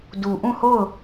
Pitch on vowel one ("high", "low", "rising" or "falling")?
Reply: low